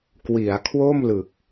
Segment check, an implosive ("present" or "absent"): absent